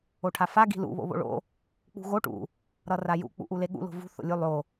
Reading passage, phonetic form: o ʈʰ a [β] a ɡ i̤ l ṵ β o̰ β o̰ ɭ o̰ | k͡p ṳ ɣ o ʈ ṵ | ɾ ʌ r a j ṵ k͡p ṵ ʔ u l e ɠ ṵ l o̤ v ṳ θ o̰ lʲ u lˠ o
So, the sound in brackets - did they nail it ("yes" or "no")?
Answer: no